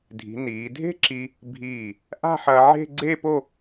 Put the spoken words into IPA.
dʱ i̤˩˧ n iː˩˧ dʱ e̤˥ ǁ i˧ | bʱ iː˧˩ | ʔ a̤˥˧ ħ ɐː˧ ʕ e̤˥˧ ɡ͡ǀ e˥˧ p o˥˧

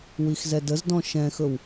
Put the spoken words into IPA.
w i x z ɛ d ə z d ɔ̃ ʃ ɛ̃ x ɵ w

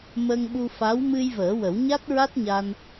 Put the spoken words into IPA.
m ə˧ ŋ ɓ u˧ f a˧˥ w m ɨ˧ j v əː˨˩˦ w ə˨˩˦ w ɲ a˦˥ t̚ ɹ a˦˥ t̚ ɲ a˧ n

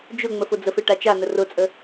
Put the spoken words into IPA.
d͡ʒ ʊ ŋ͡m ə f ʊ d͡z ə f e ʈ a t͡ʃ a n ə r ʊ t͡sʼ ə

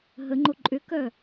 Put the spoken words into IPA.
ɦ ə ŋ͡ǃ o ǃʼ ʏ k œ

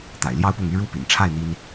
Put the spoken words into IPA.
t̪ a̰˨˩ ɪ̯ l j ɑ˥ ʊ̯ p ʊ˥˩ ŋ y˥ ɻ u˥ p ḭ˨˩ n ʈ͡ʂʰ a˥˩ ɪ̯ n̪ i˥ n

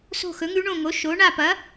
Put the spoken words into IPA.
s o̤˦˨ x ɵ˩˥ ŋ ʉ˧˥ ɳ õ˦˨ ŋ o˩˥ ʃ o˩˥ ɳ a˦˨ p ɐ˩˥

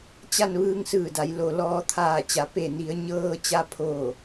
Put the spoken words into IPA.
t͡ɕ a˧˩ n ʋ ɯː˧ ŋ s ɯː˧˩ d a˩˧ j l o˩ l ɔː˩˧ t̪ʰ aː˧˩ t͡ɕ a˩˧ p e˧˩ n i˩˧ ə̯ ɲ ɤː˧ t͡ɕ a˧ pʰ oː˧˩

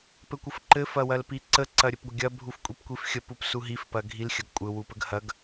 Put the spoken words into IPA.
p ɘ kʷ ə f ǃ ɘ f ɐ w ɐ l p i ǀ ə ǀ ɐ ɾʲ ɘ p ɡʷ ɐ ɡʲ ɐ bʱ u f kʷʼ i p kʷ i f xʲ ə p u p s u ɦ i f p ɐ ɡʱ i l xʲ ɐ ɡ kʷʼ ɘ w u p ə ɡ h ɐ ɡ

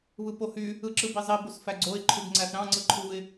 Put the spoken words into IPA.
β ɯ p o h y | ɯ ǁ ɯ b i zˤ i b o s f æ ɡ͡ǀ o ɪ̯ ǃʰ y b ŋ͡ǀ æ θ ɾ ɑ̃ ŋ͡ǀ ɯ ǃʰ u ɪ̯

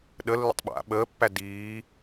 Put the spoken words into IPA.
ɗ ə lː ə̰ tˤ ɓ a̰ ɓ əː pː æ d iː

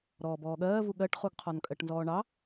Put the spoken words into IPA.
ɾ ɔː b ɔː ɠ ɜː v u ɠ ɜ ʈ χ u ɡ qʰ ɔ n kʼ ɜ ʈ n z ɔː ɳ ɑ

